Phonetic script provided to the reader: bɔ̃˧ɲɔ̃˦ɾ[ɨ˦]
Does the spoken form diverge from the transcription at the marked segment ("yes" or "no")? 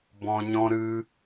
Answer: no